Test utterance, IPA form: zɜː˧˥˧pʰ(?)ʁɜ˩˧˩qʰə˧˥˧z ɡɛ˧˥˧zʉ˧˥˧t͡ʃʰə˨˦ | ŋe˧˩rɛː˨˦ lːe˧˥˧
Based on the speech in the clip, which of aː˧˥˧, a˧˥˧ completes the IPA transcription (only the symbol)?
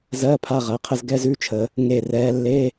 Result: a˧˥˧